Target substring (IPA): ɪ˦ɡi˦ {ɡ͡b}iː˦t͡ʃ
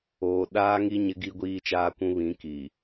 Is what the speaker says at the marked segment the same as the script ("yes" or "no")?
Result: no